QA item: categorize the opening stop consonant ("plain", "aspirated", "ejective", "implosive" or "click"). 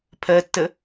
aspirated